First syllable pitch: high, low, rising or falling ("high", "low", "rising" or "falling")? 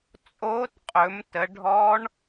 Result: rising